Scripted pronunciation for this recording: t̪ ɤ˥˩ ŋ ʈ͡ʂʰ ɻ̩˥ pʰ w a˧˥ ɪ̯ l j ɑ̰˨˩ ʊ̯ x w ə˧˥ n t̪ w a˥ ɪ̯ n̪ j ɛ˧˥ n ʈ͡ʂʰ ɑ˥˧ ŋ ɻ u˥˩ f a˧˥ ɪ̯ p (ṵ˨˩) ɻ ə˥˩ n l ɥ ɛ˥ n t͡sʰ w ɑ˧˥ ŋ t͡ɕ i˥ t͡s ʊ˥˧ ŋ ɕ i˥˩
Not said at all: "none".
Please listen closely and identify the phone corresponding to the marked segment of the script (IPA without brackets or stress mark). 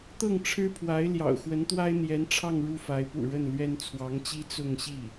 ṵ˨˩